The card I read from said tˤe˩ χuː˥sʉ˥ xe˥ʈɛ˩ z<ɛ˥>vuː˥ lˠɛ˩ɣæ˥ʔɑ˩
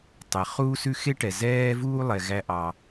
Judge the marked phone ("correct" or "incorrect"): incorrect